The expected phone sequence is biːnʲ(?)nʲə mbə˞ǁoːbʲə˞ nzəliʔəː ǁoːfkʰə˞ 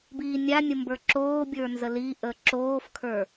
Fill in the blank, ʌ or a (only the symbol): a